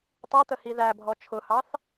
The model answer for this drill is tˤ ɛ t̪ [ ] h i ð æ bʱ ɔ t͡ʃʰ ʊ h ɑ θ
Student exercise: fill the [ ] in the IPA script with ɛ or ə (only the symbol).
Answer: ə